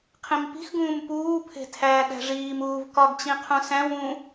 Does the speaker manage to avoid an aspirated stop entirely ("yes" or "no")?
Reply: no